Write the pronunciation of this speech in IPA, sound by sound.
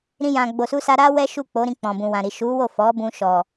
ɾĩ˧jã˨ ɡ͡bo˨su˧sa˧ ɾa˦wɛ˦ʃu˦˨ k͡po˨˦ɾĩ˧k͡pɔ̃˨ bũ˨wã˨ɾi˨ ʃu˨˦wo˦˨ fɔ˨˦bũ˧ ʃɔ˨

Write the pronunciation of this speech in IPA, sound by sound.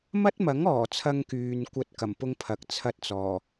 mɐ˥t̚mɐ˨˥ŋɔː˨˩t͡sʰɐ˧ŋ kyː˧nkʷɐ˥t̚ kɐ˨˩mpʊ˥ŋpʰɐ˨˥k̚ t͡sʰɐ˥t̚t͡sɔː˨˩

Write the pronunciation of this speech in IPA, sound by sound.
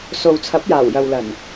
so˨w t͡sʰɐ˨˥p̚jaː˨˩wjɐ˨wlɐ˨˩n

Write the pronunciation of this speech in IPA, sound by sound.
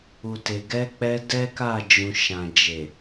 u˨te˨ ɡɛ˨˦k͡pɛ˧ dɛ˦ka˦˨d͡ʒũ˨ ʃã˨d͡ʒe˨

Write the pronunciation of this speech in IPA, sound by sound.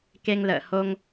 ke˧ŋlə̰ː˧˨ho˧ŋ

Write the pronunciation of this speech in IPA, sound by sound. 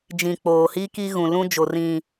d͡ʒĩ˨ k͡poː˨hi˦ki˦ ɣũ˨lũ˦d͡ʒo˨ rĩ˨

